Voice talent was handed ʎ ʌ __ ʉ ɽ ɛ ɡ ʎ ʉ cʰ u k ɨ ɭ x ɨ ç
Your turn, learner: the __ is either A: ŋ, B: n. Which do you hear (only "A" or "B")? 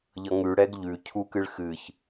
A